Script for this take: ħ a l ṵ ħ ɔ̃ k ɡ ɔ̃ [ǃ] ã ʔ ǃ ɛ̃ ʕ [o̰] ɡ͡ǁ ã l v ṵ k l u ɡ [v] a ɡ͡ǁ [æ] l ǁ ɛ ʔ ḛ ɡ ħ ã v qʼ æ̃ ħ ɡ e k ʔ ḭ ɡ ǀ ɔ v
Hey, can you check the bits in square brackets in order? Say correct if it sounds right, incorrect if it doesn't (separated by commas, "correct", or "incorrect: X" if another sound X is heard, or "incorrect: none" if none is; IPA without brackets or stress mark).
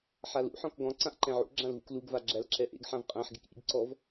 incorrect: ǀ, incorrect: ṵ, correct, correct